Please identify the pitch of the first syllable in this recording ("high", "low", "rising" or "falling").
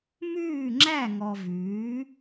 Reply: falling